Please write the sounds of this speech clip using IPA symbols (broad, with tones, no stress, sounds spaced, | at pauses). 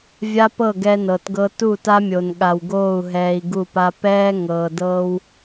vʲ a˦ p ɤ˦˨ ɡ ɛ˦ n ɤ˨ t ɡ ɤ˦ t u˦˨ t a˦ mʲ o˨ n ɠ a˨ w ɡ oː˦˨ u̯ ɦ ɛː˨ i̯ ɡ u˦˨ p a˦ p ɛː˦ ŋ ɤː˨ d ɤː˦ w